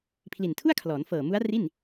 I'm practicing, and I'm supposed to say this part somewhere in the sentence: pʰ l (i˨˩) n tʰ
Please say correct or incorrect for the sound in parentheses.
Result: correct